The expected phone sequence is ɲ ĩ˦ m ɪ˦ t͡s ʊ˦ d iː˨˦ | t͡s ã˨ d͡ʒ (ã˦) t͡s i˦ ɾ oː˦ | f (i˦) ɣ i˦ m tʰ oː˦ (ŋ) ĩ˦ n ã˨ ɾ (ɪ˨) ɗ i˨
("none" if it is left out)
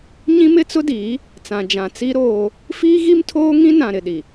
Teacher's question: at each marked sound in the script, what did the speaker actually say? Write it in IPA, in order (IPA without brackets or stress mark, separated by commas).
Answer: ã˨, iː˦, ŋ, ɪ˨